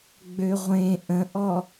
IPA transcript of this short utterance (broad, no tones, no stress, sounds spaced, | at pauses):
ɡ͡b ø ʁʷ ẽ ʔ ə̃ ʔ ɔ